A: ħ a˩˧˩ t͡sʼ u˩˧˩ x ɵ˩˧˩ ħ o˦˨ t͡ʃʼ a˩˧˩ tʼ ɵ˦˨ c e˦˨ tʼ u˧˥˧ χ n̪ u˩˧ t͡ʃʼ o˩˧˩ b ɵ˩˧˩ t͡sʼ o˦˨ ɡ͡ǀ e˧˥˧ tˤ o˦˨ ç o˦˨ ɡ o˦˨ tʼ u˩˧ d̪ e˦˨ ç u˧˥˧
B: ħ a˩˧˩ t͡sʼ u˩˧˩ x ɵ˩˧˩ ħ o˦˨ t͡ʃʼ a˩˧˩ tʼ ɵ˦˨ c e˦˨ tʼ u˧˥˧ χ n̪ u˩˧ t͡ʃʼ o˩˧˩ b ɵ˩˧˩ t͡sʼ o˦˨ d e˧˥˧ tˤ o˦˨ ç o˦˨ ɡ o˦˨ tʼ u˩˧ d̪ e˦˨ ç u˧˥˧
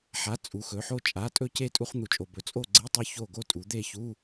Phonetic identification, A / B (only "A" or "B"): A